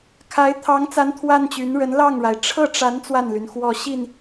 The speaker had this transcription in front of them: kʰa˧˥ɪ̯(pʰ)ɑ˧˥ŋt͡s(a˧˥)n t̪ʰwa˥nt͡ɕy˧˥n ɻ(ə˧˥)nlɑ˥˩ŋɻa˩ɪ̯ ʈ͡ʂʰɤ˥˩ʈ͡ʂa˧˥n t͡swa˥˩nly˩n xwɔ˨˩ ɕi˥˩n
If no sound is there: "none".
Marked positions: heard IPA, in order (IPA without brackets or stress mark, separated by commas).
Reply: t̪ʰ, a˧˥, ə˧˥